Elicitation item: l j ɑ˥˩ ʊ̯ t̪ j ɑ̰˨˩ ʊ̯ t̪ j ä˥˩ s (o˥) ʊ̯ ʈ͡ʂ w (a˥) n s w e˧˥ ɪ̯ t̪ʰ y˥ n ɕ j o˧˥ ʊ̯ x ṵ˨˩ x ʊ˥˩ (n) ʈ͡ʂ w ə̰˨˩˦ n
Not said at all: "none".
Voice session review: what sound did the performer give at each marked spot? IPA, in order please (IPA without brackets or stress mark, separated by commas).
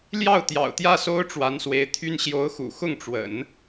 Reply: o˥, a˧˥, ŋ